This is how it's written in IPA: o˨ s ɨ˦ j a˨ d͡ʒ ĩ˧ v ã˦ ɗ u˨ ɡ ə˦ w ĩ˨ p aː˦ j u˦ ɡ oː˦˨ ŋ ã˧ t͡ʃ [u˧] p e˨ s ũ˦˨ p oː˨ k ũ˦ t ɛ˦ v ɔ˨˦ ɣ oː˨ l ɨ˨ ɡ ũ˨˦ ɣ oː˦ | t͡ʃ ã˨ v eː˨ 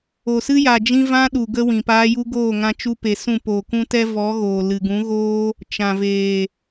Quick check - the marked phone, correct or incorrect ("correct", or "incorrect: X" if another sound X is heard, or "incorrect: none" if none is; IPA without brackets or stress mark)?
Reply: incorrect: u˦